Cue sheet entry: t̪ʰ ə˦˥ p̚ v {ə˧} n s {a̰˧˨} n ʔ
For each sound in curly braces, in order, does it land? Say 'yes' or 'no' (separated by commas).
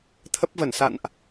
no, yes